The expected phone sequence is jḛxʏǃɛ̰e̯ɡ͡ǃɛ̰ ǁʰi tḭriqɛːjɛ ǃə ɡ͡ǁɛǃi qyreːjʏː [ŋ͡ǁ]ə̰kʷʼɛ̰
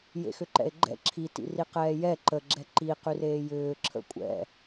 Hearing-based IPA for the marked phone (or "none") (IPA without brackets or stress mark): ǁʰ